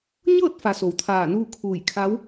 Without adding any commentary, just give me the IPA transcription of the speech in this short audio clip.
ɲɤː˥˨t̚fa˩ so˩˧wt̪ʰaː˧˩nuː˥˨kʰuː˧˩j kʰa˧˥w

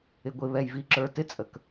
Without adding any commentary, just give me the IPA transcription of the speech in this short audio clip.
ɪ˨ɡʷɪ˨ βɛ˨jvi˨ǁə˞˨ tɪ˦t͡sʼə˨k

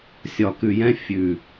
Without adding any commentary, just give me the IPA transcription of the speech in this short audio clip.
sʲɒ˨kʉ˨jɛ̃˦ fʲʉ˨

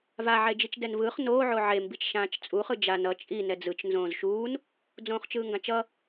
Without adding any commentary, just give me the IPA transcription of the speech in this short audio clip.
va ʕed͡ʒit͡ʃdɛnvɯːχ noː ʕoʕe mbit͡ʃʃãːt͡ʃt͡sʼu χɯd͡ʒa nʌ t͡ʃʼi nɛd͡zɯt͡ʃ nzõːzʃuːn | d͡zõːχt͡ʃɯːŋɡãt͡ʃʌ

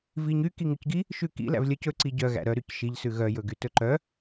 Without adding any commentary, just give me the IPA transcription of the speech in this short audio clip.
viɲy kiŋʉcɡi | ʃʉkḭ læ̰vlʲœc ɵ ǀiɟœ ɣæ̰ɾœ ɾycʃiʎ sʉɣœ jɵɡytɵǃœ

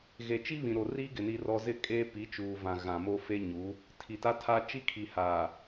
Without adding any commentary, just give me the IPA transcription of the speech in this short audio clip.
ɣe˨t͡ʃi˦βĩ˨ ɾo˨riː˦ɡɪ˨ ni˦rɔ˦ zɪ˦ kʼeː˦pi˨˦ t͡ʃuː˨vã˨ ɣã˨mo˦ fe˦ɲu˨˦ | tʰi˨ta˦tʰa˦ t͡ʃi˦kʰi˨ haː˨

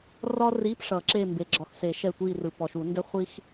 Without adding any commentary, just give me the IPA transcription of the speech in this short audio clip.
rɒ˥ ri˧˥˧pʂʌ˨˩˦ ǁe˦˨mbe˨ ɡ͡ǁɒ˨xse˨˩˦ʃɛ˦˨ tʷi˦˨rɯ˨ pɔ˨ʃu˨˩˦ndɛ˥ χʷi˥x

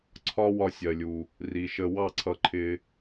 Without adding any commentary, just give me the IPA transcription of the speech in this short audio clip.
ǀʰɒ˦wɒ˧ sʲɜ˨lʲu˨ | ri˨ʃə˧ wɑ˦˨ǀʰʌ˧ǃʰɪ˧

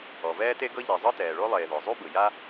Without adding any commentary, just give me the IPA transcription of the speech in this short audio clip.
ɔ˩vɛː˥ te˥ɡɤ˥ ʎe˩ zˤɯ˥tɛː˩ɭo˥lˠeː˩ ðɔ˩zˤu˥bɯ˩ja˥

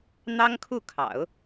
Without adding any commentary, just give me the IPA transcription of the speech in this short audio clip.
n̪ɑ˥ŋkʰu˥˩kʰɑ̰˨˩˦ʊ̯

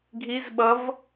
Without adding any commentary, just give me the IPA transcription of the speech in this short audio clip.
ɡʱiz ɓʌv

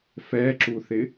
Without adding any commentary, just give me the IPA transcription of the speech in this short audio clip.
fɛǁuθɪ

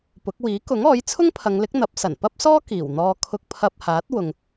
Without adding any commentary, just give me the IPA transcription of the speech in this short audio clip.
pʊ˨˥k̚ wiː˨˥kʊ˨˥ŋɔː˨˥j t͡sʰʊ˥ŋpʰɐ˨˧ŋlɪ˨˥k̚ n̪ɐ˨˥p̚sɐ˨˩npɐ˥p̚sɔː˥ kiː˨˩wn̪ɔː˧ kʰʊ˧k̚pʰɐ˧p̚haː˨˥t̚ wʊ˧ŋ

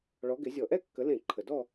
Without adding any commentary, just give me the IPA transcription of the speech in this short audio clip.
ɭɔ˨˦ɡɪ˨˦zʲɔ˧˩˧ ʔɛ˥˧kːə˨˦lẽ˧˩˧ ǃʰə˨˩dɔ˥˧

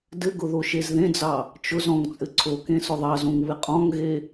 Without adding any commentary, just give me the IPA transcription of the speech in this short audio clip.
dɘɡʊ ðoʃezðẽd͡zɑ | t͡ʃʊz ɔ̃ŋt͡sʼɘ ǀʰokẽ sʊðˤɑzõŋ βɪqʼɔ̃ŋɣe

